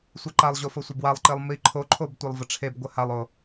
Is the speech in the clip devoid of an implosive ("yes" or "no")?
yes